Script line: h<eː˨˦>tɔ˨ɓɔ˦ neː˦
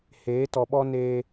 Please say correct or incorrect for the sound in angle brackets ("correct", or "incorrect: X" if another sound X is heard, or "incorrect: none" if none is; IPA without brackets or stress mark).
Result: correct